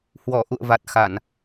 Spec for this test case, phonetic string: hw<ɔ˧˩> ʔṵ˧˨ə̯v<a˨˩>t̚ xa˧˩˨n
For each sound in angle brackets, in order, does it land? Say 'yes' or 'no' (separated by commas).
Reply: yes, yes